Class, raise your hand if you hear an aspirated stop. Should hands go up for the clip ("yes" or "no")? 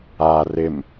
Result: no